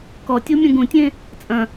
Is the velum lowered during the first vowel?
no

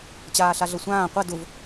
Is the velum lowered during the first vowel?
no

